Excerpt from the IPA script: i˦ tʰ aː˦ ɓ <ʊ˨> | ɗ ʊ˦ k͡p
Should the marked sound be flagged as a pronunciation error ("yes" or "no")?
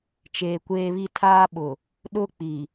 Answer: no